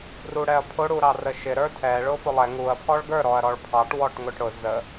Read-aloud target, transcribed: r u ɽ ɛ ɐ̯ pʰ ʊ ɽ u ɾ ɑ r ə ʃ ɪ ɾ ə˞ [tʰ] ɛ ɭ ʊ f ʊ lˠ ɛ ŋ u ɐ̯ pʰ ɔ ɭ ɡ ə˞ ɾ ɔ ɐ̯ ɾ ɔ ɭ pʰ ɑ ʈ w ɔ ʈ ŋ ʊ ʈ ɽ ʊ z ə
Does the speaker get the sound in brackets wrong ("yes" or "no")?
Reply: no